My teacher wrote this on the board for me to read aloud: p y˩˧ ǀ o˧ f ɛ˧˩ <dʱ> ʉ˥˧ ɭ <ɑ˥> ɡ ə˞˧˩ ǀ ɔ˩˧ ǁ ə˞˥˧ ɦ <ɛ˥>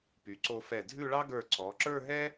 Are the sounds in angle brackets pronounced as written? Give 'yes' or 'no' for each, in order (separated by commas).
yes, yes, yes